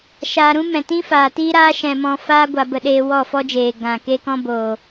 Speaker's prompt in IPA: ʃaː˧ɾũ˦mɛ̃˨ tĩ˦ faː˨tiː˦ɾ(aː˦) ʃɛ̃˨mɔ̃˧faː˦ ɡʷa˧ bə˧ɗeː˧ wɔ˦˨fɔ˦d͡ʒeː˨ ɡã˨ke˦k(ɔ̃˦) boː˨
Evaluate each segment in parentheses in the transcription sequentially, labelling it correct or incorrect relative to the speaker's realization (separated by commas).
correct, correct